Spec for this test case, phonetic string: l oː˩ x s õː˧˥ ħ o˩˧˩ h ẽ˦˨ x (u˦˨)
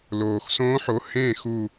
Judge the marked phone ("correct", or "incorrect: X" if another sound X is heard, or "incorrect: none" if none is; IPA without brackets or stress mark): correct